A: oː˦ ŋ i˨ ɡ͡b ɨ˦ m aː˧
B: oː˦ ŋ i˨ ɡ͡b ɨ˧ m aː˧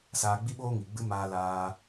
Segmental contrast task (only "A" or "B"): A